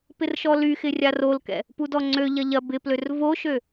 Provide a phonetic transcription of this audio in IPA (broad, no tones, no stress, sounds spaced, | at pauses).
p ɪ r ʃ ɔ l y x ɪ rʲ a r o l k ɛ̰ | p u d ɔ ŋ͡ǀ ø ʎ ɐ ʎ ɐ b ɪ p l ø r v o ʃ ø